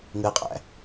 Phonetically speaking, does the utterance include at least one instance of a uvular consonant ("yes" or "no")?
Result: yes